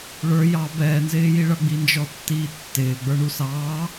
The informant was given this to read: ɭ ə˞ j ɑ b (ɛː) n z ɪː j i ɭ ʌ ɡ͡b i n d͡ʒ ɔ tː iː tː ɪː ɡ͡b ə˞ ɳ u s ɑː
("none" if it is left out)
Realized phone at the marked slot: ɛː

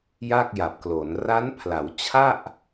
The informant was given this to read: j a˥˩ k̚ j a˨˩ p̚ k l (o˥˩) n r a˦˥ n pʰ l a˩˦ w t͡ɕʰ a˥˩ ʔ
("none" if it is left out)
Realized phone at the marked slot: o˩˦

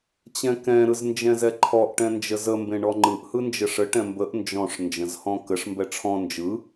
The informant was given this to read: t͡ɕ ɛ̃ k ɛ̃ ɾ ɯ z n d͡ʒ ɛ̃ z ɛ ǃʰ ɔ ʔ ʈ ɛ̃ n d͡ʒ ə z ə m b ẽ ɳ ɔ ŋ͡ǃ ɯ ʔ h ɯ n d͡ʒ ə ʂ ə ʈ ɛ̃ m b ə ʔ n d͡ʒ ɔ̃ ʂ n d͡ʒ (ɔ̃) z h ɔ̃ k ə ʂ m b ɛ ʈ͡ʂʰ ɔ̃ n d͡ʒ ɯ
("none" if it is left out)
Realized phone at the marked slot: ə̃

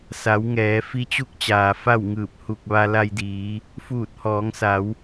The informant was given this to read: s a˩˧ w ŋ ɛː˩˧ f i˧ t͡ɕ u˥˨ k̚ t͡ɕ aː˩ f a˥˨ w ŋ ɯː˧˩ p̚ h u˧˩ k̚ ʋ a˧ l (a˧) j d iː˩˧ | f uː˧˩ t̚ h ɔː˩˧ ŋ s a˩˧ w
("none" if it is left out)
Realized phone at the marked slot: a˧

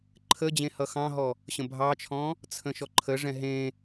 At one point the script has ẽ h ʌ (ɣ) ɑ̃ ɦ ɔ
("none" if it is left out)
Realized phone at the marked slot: x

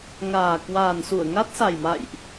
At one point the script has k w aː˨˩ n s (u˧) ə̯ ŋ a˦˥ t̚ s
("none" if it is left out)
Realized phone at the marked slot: u˧˩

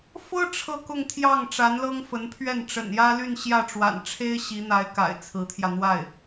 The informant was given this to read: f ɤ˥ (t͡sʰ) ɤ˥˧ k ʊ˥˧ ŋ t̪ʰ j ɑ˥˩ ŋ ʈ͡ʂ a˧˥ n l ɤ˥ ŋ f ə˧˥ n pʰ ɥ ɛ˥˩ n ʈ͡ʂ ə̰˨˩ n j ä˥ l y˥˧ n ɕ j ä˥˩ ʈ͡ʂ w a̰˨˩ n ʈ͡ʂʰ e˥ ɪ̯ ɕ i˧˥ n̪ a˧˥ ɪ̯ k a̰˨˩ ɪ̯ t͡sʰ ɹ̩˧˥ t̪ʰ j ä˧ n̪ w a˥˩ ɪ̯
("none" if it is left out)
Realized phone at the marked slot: ʈ͡ʂʰ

